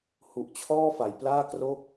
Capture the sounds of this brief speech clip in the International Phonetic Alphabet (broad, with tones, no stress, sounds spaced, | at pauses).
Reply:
h u˨˩ ʔ t͡ɕʰ ɔː˥˩ f a˩˦ j p l aː˥˩ k r o˥˩ k̚